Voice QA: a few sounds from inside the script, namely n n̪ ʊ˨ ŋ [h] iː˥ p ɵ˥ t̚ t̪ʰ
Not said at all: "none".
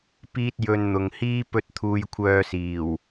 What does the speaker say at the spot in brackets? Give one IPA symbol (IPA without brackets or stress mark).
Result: h